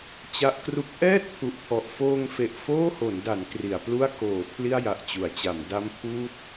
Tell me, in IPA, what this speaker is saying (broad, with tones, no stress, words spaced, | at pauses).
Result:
t͡ɕa˦˥ʔkru˦˥k̚ ʔɛː˥˩t̚pʰu˨˩ʔpʰɔ˨˩ʔfoː˧ŋ fe˨˩ʔfoː˥˩ho˩˦nda˩˦n kri˩˦a̯plu˥˩a̯ koː˩˦ pʰli˥˩a̯ja˨˩ʔt͡ɕu˩˦a̯t͡ɕa˩˦m da˦˥mpʰuː˦˥t̚